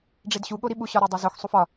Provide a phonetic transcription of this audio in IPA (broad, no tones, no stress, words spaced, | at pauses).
ɖ͡ʐedɕu ɠoɾiɓu ɕɒɾædˤezox sˤufɒ